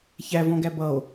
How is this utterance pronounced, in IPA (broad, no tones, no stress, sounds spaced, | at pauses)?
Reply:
ç æ v ɔ̃ ɡ æ b ʌ o̯